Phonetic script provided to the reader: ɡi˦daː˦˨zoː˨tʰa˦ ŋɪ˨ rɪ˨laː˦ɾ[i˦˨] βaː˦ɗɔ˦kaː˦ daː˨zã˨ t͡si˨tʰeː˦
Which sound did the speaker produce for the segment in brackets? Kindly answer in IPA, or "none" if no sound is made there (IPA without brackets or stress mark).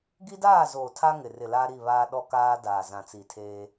i˦˨